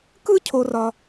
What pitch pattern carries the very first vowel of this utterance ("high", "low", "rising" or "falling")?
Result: high